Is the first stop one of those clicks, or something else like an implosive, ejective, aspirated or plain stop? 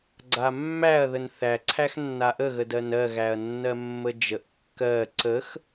click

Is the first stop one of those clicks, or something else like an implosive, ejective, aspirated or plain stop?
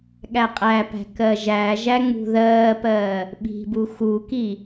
implosive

